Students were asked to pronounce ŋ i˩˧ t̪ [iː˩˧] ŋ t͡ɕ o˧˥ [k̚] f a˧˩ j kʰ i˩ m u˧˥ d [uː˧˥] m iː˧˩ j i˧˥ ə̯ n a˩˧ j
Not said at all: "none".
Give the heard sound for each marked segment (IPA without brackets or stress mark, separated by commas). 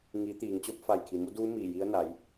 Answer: iː˩˧, p̚, uː˧˥